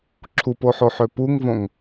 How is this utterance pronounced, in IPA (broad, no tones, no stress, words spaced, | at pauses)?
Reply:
ǁʰupoħoħø puŋvõŋ